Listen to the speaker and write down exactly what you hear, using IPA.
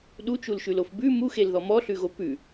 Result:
ɗ u t͡ʃ u l ʃ ʉ l o f b ʉ m u x e l ð ɔ m ɔ ɬ ʉ ɣ o p ʉ

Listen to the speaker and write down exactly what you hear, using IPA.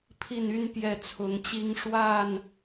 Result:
pʰ i˥˨ n y˦ n p j ɛ˥˨ t͡sʰ ʊ˨˦ ŋ t͡ɕ i˦ ŋ ʂ w a˥˨ n

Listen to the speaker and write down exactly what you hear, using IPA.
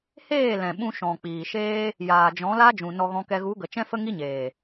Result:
h eː˦˨ l ɛ̃˨ ɓ ũ˧ ʃ ɔ̃˨ k͡p iː˨ ʃ eː˦ | j aː˨ d͡ʒ ɔ̃˨˦ l a˦ d͡ʒ ũ˨ n ɔ˧ ɣ ɔ̃˧ k ɛ˧ ɣ u˨˦ ɡ ə˨ t͡ʃ ɛ̃˦ f ə˦ ŋ i˦ ɲ eː˨

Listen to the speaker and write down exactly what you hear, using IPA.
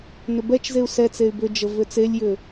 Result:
n ʏ b ɛ t͡ʃ z e u̯ s ɛ t͡s e y̯ b ʏ d͡ʒ ə v ʏ t͡s e lʲ j ʏ

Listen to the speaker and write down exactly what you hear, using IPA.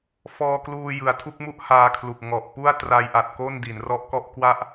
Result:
f ɔː˧ k l uː˧ j ɯ˩˦ a̯ tʰ u˦˥ k̚ m u˥˩ ʔ h aː˧ kʰ l u˨˩ k̚ ŋ ɔ˨˩ ʔ p u˥˩ a̯ t r a˧ j ʔ a˨˩ t̚ k o˥˩ n d i˩˦ n r ɔ˦˥ ʔ k ɔ˥˩ ʔ k w a˦˥ ʔ

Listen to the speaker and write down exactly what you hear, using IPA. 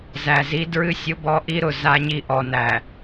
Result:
z æ˨ z i˦ d ɹ ɨ˦ sʲ ʊ˦ b ɔ˦ ʔ i˦ ɾ ʊ˨ z a˦ ɲ i˦ ʔ ɔ˨ n æ˨

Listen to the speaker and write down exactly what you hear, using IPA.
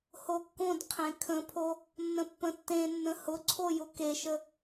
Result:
h o kː õ d qʰ ẽ kʰ ə̃ pʰ o | nː ə̃ pː ə̃ tː ẽ nː ə̃ h ʊ ǀʰ o j ʊ k e ʃ ə

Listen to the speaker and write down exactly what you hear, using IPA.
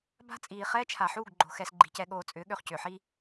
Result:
b a̤˦ t͡sʼ iː˨ χ ɛː˦ t͡ʃʰ a˨ ħ uː˦˨ ɡ ɡ͡ǃ o̤˨ x ɛ˨ s ɡ͡ǃ i̤˨ c ɛ˨ ɠ oː˨ t͡sʼ ʏː˨˦ ɠ ø˨ χ c ʏː˨ ħ i˦

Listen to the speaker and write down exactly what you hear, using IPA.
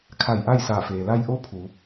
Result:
kʰ a˧˩ j ʔ a˥˨ j s aː˧˩ f eː˩ l a˧ j ʔ o˧˥ pʰ u˩˧

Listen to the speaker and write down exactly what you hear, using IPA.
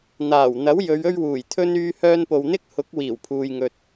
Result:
n̪ aː˨˩ w n̪ ɐ˨˥ w j ɵ˨˧ ɥ ɵ˥ ɥ w uː˨˩ j t̪ʰ ɵ˥ n yː˧ h œː˧ n p o˨ w n̪ ɪ˥ k̚ h ʊ˨˥ k̚ w iː˨˩ w pʰ uː˨ j ŋ ɵ˨ t̚

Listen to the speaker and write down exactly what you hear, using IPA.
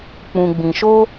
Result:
k͡p ũ˧ ɡ͡b ĩ˧ ʃ o˦

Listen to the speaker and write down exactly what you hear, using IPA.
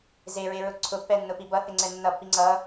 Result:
z e ɹ e ɹ ʊ ǀʰ ʊ pː ɛ nː ʊ p i b ʌ θ e ŋ͡ǀ ɛ nː ʌ pː i ŋ͡ǀ ʌ

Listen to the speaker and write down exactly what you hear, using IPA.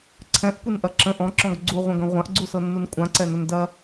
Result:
ǀʰ ɛ̃ ʔ kʷ ɨ n ʔ ɐ ǁ ə̃ ʔ ɔ̃ ǁ ɔ̃ ɡ ɡ͡ǀ u ʁʷ ɐ̃ ɡ ɐ̃ ʁʷ ã ʔ ɡ͡ǀ u s ɤ nː u n kʷʼ ã ǀ ɛ n ə n d ɐ

